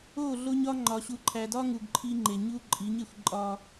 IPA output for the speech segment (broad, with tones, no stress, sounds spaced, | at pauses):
o˦˨ ɮ o˦ ɲ ɒ˦ ŋ͡ǃ ɒ˨ ɕ u˨ ǃʰ æ˨ d ɒ˦ ŋ u˨ ɡ ǃʰ i˦ ŋ͡ǃ e˨ ɲ u˦ ǃʼ i˨˦ ɲ e˨ xʷ ǃʼ ɒ˦